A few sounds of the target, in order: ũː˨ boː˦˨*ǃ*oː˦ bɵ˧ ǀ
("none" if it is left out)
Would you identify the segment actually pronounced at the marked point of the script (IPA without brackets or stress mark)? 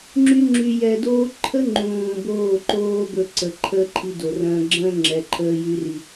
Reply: ǃ